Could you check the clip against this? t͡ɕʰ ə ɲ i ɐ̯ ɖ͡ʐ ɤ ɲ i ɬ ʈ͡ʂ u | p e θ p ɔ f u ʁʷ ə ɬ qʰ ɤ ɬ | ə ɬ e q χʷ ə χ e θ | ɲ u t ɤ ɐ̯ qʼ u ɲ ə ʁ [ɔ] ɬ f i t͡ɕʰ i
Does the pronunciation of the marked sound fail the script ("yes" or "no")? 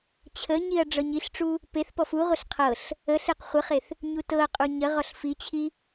no